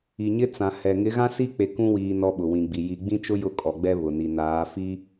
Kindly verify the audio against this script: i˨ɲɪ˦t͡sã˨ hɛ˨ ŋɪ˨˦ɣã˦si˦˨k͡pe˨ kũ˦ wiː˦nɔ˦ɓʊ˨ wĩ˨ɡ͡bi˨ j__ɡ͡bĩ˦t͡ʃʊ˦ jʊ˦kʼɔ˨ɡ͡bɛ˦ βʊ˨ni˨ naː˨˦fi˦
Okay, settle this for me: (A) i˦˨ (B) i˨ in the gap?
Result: B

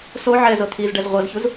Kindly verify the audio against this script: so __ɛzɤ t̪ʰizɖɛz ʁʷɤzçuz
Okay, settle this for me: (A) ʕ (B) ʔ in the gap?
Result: A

